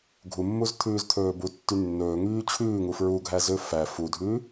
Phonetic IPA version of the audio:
ɡʱumːuzt̪ʰʉːzt̪ʰɵː butːy nːɵːŋyː t͡ɕʰʉːŋu fɹuɡʱæzø fæ fudʱʉː

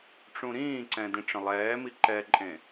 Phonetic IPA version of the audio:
ʈ͡ʂũɾĩːǀɛ̃ dẽʈ͡ʂə̃lˠɛːmi ǃɛǃʼẽ

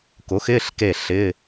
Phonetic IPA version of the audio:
kʊ˨˥xɪː˧˥˧ɬ ke˥˨ɬɪ˧˥˧

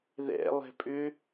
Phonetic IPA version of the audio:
ðɛ̰ lˠɛ̤pʼʏ

